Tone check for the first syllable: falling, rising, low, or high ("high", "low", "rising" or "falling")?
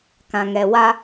low